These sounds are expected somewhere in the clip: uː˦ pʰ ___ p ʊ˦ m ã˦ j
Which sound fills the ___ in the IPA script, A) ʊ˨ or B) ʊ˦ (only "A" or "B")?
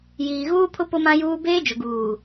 B